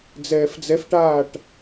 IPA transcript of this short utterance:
d͡z ɛː f d͡z ɛ f ʈ aː ʈ

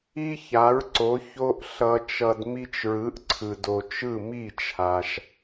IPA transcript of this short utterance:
i˥ ç a˩˥ ɹ ǀ o˩˥ ç o˧ ʔ ɬ ʌ˧ t͡ʃ ʌ˧ d m i˧ t͡ʃ ɹ ɯ˩˥ ʔ ǀʰ ɯ˩ d o˩ t͡ʃ ɯ˥˩ m i˥˩ t͡ʃʰ a˩ ʃ

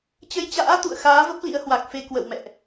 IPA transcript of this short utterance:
t͡ɕ ə˧ j t͡ɕ a̰ː˧˥ t̪ ṵ˧˨ ə̯ x aː˨˦ v ə˦˥ p̚ l ḭ˧˥ ə̯ h w a˨˩ k̚ f e˧ k w ə̰˧˨ w m ɛ̰˧˨ ʔ

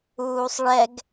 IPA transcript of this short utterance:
uː sˤ ɭ ɛ ɡ

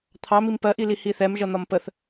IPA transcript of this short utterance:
t̪ʰ ɑ m i m p ɜ ʔ i l i h i θ ɛ m ʒ ʌ n̪ ɒ m p ə θ

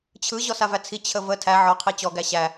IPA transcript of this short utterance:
t͡ɕʰ ɯ ʑ ɔ s a v æ t͡sʰ i t͡ɕʰ ə v ə tʰ æ ʕ ɔ qʰ i t͡ɕ ɔ ɡ æ ɕ æ

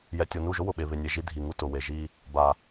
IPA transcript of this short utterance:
j ɛ˨ tʲ o˨ n u˦˨ ʒ ʊ˦ w ʊ˨ ɓ e˨ β ɪ˨ nʲ e˨ ʒ i˧ dʱ i˨ ŋ u˧ t ʊ˨ w e˨ ʒ i˧ | b a˨

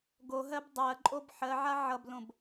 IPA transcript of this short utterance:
ɡ o ɦ ɜ b dˤ ɜ ǃʼ o b ħ ɜ ʕ a ʕ ʌ b l õ b

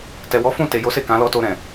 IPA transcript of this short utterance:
t ɛ˨ w ɔ˨˦ f ũ˦˨ t e˨ j o˨˦ s e˦˨ k ã˨˦ l ɔ˦ t o˧ ɾ ɛ̃˨

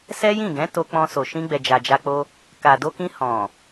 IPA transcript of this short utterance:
s ɛ˦ j ĩ˦˨ ɡ ɛ̃˨˦ t o˧ k͡p ɔ̃˧ s o˨ ʃ ĩ˧ ɡ͡b ɛ˨ d͡ʒ a˨ d͡ʒ a˧ k͡p o˧ | k a˨ d o˧ k ĩ˧ h ɔ̃˨

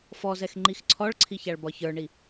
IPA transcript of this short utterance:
f ɔ z ɛ x ŋ͡ǃ i x ǀʰ ɔ ɭ ǀʰ i ç a ɭ b ɒ ç ə˞ ɳ i

